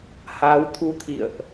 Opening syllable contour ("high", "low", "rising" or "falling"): rising